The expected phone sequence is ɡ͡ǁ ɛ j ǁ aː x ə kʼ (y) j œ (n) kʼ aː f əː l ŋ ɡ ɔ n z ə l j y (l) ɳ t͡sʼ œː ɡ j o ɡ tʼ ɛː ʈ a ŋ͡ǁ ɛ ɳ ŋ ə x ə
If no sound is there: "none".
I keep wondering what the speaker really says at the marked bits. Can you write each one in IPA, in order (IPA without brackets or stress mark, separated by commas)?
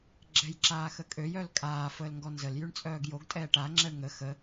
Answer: ø, l, none